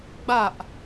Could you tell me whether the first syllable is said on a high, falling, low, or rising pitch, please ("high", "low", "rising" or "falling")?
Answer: falling